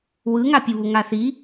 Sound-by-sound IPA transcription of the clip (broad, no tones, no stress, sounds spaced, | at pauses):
w ɯ ŋ a pʲ u β u ŋ a θ i